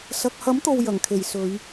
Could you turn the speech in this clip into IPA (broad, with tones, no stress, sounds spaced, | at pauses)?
s ɐ˧ k̚ h ɐ˨˥ m t̪ o˨ w j ɐ˨˩ ŋ kʰ e˨˩ j s ɵ˨˧ ɥ